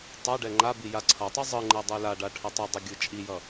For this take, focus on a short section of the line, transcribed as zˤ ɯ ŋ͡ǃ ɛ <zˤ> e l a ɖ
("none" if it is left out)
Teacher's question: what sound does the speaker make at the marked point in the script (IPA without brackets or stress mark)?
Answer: dˤ